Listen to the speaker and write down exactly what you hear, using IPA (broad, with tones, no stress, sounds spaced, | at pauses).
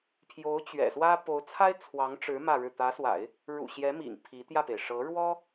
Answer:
pʰ j o˧˥ ʊ̯ t͡ɕ ɥ ɛ̰˨˩ s w ä˥ p o˧˥ ʊ̯ t͡sʰ a˥ ɪ̯ t͡sʰ w ɑ˧˥ ŋ ʈ͡ʂ ɻ̩˧˥ m ä˥˧ ɻ ɻ̩˥˩ t̪ ä˧˥ s w a̰˨˩˦ ɪ̯ | ɻ ṵ˨˩ ɕ j ɛ˧˥ m ḭ˨˩ ŋ pʰ i˧˥ t̪ j ä˥˩ p e˩ ɪ̯ ʂ ɤ˧˥ ɻ w ɔ˥